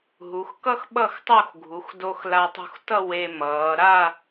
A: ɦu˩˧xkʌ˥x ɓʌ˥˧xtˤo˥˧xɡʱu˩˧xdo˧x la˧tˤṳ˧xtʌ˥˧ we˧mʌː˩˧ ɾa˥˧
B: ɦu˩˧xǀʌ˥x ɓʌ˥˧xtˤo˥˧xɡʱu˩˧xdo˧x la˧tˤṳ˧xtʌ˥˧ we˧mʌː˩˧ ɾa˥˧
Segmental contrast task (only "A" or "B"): A